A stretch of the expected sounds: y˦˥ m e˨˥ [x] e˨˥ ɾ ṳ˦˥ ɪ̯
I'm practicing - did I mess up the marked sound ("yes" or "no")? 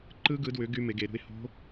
yes